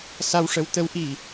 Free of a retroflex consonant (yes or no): no